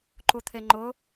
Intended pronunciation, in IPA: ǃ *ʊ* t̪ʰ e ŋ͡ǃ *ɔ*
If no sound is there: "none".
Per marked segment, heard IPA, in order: u, ʊ

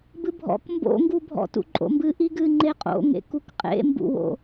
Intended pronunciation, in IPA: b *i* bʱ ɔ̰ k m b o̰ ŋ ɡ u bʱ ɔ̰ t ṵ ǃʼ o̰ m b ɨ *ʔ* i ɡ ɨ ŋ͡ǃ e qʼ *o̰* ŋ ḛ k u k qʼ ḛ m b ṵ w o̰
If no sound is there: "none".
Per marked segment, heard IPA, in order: ɨ, ʔ, o̰

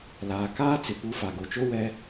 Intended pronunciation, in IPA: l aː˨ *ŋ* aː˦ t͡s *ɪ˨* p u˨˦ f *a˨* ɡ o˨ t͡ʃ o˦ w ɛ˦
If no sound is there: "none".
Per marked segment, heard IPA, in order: k, ɪ˨, a˨

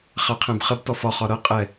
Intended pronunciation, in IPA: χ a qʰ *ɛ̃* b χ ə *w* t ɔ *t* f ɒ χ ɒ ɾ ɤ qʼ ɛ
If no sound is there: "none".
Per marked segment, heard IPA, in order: ɛ̃, b, none

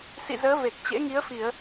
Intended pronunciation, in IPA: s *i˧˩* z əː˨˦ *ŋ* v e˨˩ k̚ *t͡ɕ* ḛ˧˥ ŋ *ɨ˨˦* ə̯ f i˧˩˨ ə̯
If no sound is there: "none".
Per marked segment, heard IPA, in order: ḭ˧˨, none, t͡ɕ, i˨˦

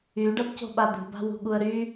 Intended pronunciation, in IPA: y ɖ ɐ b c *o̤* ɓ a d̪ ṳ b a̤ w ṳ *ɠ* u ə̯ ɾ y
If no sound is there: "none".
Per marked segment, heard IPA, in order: o̤, ɠ

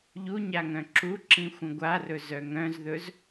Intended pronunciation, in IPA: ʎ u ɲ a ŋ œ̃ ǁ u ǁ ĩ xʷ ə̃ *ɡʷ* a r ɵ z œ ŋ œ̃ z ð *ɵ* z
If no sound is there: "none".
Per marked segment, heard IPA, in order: ɡʷ, ɵ

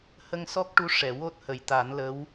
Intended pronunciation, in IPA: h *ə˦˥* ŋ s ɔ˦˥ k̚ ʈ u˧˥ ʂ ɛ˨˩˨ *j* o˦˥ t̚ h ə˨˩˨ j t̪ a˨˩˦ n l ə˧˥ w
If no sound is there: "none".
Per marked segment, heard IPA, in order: ə˧, w

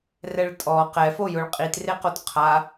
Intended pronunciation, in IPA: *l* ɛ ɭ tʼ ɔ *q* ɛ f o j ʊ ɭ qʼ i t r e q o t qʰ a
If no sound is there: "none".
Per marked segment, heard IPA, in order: r, q

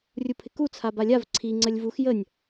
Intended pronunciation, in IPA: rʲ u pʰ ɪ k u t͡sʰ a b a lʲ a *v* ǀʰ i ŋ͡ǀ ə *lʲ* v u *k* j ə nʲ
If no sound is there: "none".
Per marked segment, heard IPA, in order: v, lʲ, x

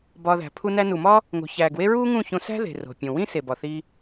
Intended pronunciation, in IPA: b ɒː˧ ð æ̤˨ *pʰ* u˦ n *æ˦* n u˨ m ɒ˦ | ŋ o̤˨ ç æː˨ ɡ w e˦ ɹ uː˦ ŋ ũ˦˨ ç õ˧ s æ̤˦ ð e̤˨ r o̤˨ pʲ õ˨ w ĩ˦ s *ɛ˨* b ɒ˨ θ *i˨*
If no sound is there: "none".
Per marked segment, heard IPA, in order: pʰ, æ˦, e˨, i˧

